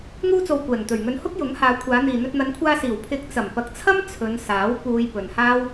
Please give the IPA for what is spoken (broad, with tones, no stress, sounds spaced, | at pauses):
ŋ uː˧ t͡s o˨ w kʷ ɛː˨˩ ŋ t̪ ɵ˨˩ ɥ ŋ ɵ˨˧ n h ʊ˥ k̚ j ʊ˨˥ ŋ h aː˨˧ kʷʰ aː˨˧ n̪ iː˨ n̪ ɵ˧ t̚ n̪ ɐ˨˧ n kʷʰ aː˧ s iː˨˩ w pʰ ɪ˨˥ k̚ t͡s ɐ˨˩ m p ɐ˨ k̚ t͡sʰ ɐ˥ m t͡sʰ ɵ˨˧ n s aː˨˥ w p uː˧ j p ɵ˨ n h aː˥ w